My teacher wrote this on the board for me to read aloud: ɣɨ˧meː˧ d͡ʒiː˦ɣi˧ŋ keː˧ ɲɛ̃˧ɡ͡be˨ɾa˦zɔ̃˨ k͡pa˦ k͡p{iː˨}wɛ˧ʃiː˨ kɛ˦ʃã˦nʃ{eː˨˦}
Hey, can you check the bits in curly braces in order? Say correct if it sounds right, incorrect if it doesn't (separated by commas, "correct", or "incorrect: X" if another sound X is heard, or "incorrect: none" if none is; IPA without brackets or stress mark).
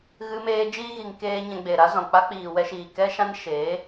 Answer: correct, correct